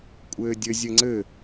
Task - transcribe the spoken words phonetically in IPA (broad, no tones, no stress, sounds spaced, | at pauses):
kʷʼ ɘː dʲ ɘ zʲ ɘ ŋ͡ǀ ɘ